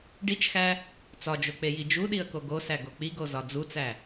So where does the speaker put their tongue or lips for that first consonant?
retroflex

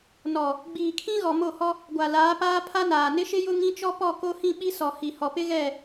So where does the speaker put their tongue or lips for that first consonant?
tongue tip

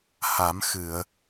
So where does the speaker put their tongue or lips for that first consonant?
throat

